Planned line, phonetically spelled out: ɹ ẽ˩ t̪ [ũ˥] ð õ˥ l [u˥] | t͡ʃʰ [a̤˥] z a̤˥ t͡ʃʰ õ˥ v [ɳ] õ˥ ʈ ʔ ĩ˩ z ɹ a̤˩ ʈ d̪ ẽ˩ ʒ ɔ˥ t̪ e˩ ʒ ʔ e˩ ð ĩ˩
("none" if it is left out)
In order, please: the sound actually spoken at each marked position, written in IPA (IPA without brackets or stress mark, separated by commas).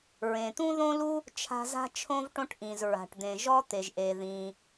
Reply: ũ˥, u˥, a̤˥, ʈ